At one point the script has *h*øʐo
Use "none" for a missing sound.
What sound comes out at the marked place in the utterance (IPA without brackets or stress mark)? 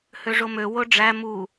h